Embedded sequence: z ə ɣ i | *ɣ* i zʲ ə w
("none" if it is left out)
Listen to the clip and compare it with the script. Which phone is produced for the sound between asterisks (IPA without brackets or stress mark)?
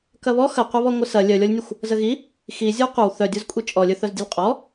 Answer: x